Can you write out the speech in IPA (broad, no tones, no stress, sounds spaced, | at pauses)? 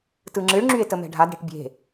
t ɯ ŋ͡ǁ ɨ ɭ ŋ͡ǁ y e̯ t ə m ɛ̤ ɖʱ a d ɽ e̤ ʈ bʲ e̤